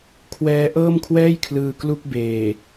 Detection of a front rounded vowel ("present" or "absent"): absent